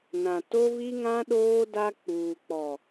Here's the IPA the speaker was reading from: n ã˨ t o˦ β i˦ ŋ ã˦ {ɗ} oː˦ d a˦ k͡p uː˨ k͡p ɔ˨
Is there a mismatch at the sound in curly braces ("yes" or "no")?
no